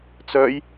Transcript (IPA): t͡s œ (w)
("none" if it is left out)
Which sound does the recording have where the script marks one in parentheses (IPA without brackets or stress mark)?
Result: j